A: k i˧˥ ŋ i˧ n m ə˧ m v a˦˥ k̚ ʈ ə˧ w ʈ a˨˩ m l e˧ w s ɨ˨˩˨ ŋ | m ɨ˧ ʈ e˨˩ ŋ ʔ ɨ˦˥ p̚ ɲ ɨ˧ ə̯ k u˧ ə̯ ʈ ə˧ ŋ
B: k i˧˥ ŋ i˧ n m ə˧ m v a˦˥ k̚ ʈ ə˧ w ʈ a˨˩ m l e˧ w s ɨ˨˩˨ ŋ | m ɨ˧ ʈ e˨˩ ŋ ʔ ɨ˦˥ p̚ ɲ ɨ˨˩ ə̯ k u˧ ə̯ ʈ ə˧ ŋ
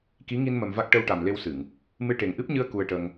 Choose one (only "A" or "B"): A